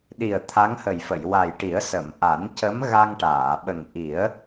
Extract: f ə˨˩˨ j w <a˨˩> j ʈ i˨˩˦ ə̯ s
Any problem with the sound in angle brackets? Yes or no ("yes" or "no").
no